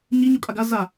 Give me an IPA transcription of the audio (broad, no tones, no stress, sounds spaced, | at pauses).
ɲ i ɲ o kʼ a ɡ a z a